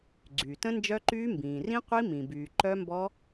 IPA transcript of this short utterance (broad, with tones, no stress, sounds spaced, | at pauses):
ɡ͡ǀ yː˩ t ə̃˦˥ n d͡ʒ œ˦˥ ǃ yː˦˥ m b ĩː˩ r ĩ˦˥ qʷ i˦˥ m ĩ˩ b yː˩ ǃ œ˦˥ m b ɔ˦˥